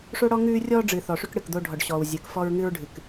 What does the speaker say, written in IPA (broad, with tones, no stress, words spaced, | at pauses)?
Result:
ʂo˦ɽɔ˦ ŋʉː˦rʲɔː˦ ɖ͡ʐɨ˨θɔ˨ʂʉ˦k ɽɨ˨kd̪o˦ ɖʱɔ˨ɖɕɔː˨wzʲɨː˨k fɔ˦ɹŋɨ˦ɹɖʱɨ˨k